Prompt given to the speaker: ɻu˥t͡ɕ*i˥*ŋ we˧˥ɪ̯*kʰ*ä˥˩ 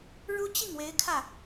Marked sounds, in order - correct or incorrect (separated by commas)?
incorrect, correct